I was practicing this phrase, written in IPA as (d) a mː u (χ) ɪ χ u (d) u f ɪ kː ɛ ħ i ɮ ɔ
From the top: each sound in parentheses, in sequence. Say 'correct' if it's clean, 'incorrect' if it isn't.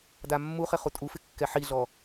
correct, correct, incorrect: tʼ

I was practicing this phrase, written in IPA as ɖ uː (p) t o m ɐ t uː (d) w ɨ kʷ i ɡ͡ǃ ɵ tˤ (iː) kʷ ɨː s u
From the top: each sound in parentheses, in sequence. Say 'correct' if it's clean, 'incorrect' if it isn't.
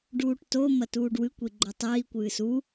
incorrect: ʈ, incorrect: ɖ, correct

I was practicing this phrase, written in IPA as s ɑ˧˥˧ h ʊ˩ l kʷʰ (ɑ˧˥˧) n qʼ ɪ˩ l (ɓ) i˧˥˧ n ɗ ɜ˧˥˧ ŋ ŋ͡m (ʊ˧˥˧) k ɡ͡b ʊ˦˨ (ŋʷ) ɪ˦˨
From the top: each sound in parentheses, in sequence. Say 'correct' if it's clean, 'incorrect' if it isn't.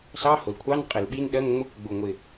correct, correct, correct, correct

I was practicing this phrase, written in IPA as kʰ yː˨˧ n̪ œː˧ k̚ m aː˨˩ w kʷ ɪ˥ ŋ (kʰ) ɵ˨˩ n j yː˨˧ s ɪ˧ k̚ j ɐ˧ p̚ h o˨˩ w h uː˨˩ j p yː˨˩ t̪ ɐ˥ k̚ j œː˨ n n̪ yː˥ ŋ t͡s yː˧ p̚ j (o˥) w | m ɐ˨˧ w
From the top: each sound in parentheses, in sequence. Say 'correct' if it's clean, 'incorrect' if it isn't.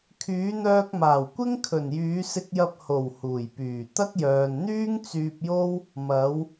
correct, correct

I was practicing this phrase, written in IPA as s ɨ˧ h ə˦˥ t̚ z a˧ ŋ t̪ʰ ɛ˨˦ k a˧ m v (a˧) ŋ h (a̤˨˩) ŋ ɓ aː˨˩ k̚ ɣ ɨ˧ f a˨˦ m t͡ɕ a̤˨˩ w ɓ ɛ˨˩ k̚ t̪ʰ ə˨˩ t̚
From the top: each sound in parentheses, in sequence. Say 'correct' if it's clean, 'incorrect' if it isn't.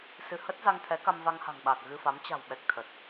correct, correct

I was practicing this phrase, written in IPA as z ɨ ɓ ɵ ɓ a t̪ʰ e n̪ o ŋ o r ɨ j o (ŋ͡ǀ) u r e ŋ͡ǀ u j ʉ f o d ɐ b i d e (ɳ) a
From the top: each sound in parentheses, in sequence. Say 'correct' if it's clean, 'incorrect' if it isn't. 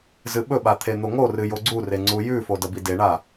incorrect: ɡ͡ǀ, correct

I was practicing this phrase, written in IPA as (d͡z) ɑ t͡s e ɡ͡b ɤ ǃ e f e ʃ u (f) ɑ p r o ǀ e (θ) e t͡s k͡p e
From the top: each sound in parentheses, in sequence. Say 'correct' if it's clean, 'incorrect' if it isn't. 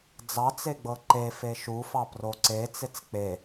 correct, correct, incorrect: t͡s

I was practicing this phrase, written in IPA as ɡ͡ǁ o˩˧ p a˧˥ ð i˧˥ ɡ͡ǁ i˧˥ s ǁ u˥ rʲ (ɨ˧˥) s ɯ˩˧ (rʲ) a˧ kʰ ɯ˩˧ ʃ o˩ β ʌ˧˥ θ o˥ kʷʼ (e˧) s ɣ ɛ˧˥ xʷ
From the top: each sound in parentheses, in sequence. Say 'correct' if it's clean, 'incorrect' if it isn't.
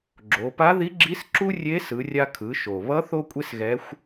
incorrect: e˧˥, correct, incorrect: e˥

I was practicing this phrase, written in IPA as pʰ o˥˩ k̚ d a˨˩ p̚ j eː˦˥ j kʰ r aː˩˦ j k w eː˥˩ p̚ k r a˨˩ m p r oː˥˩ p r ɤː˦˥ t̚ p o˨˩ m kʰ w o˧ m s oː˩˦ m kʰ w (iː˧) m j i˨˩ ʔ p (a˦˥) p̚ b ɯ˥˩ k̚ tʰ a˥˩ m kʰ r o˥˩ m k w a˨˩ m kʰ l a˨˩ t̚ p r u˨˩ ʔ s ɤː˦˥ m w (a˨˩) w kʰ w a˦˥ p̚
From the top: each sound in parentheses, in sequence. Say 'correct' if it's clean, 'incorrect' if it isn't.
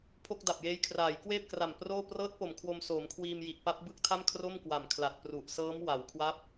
correct, correct, incorrect: a˩˦

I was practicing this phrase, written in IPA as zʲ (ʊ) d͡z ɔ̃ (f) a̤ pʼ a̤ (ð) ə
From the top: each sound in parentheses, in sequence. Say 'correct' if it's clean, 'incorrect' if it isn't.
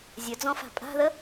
incorrect: ɵ, correct, correct

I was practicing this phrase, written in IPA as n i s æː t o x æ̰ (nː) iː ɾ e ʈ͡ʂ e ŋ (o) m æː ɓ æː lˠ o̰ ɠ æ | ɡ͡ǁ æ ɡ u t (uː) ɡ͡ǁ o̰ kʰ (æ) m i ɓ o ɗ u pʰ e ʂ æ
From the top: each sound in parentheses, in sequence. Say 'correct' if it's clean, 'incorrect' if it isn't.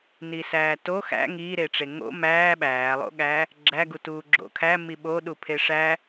incorrect: ŋ, incorrect: o̰, correct, correct

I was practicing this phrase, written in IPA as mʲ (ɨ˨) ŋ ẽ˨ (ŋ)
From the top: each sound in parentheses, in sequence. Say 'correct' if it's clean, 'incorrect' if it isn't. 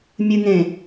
correct, incorrect: none

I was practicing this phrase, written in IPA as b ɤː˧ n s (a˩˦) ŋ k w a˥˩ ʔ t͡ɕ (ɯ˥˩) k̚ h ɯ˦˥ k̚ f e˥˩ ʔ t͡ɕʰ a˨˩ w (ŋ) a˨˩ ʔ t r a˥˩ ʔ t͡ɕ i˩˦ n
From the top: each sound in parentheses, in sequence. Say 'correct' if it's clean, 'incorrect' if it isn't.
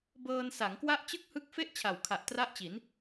correct, correct, incorrect: kʰ

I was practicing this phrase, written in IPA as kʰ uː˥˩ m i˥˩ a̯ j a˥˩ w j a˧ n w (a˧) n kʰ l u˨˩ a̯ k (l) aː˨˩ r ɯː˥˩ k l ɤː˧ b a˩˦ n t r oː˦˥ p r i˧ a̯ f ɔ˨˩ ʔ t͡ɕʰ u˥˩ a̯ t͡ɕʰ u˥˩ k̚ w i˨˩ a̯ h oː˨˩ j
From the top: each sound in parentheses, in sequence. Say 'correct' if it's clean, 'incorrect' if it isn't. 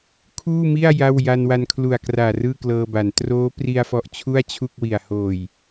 correct, incorrect: r

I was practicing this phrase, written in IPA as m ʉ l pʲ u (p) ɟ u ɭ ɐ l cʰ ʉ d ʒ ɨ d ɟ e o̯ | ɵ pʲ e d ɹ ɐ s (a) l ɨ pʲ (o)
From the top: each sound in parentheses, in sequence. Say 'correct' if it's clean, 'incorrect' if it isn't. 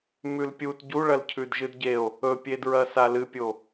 incorrect: t, correct, correct

